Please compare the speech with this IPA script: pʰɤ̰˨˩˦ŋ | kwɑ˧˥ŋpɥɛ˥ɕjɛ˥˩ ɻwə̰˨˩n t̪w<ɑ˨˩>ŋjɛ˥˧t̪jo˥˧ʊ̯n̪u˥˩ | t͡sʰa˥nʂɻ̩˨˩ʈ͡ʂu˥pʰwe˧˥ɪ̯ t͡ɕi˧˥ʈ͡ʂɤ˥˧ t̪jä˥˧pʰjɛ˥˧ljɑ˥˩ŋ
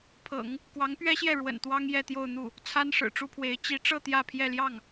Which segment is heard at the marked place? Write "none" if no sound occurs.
ɑ˥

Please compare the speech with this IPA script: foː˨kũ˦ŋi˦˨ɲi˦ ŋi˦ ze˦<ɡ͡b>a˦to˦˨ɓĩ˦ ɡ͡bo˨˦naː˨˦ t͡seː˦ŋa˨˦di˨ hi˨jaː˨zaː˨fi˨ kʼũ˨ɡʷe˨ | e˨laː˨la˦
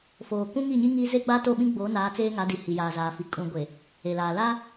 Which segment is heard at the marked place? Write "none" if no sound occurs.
ɡ͡b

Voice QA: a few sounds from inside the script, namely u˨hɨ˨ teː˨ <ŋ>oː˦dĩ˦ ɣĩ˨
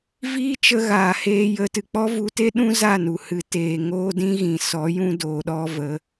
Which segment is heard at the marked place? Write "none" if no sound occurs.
ŋ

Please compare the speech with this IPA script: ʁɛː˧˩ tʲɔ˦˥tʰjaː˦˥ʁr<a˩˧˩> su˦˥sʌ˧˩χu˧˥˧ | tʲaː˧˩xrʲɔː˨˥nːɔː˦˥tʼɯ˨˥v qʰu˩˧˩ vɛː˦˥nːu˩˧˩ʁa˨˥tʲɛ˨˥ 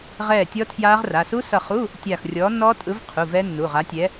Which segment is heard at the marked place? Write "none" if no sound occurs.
a˩˧˩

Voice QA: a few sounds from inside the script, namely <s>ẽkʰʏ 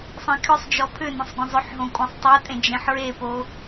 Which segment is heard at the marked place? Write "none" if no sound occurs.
sˤ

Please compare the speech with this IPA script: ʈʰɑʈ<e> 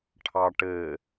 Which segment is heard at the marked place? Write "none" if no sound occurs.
ɘ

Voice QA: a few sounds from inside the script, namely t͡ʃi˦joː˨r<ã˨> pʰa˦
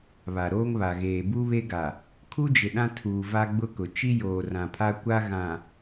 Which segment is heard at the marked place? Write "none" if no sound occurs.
ã˨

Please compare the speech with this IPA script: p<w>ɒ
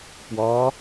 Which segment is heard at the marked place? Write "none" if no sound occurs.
w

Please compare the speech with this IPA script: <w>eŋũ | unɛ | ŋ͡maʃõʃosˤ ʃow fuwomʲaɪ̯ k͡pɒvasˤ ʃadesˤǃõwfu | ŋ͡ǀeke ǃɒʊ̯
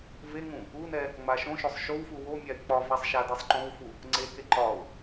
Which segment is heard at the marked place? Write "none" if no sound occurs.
v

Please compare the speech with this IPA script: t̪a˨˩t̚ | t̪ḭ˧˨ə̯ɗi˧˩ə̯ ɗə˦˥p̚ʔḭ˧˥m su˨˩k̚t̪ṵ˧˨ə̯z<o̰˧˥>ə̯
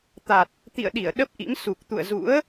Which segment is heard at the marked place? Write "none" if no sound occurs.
ṵ˧˥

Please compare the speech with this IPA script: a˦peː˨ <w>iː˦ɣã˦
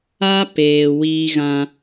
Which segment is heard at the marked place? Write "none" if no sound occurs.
w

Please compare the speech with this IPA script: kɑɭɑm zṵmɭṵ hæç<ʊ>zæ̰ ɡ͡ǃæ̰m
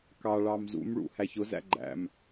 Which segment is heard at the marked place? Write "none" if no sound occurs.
ʊ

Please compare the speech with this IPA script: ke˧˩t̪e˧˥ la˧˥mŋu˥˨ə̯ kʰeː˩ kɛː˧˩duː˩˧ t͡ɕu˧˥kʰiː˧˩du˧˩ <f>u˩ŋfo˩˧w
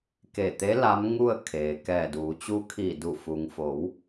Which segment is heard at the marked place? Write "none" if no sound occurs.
f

